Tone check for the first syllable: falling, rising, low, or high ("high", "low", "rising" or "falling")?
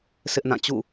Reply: high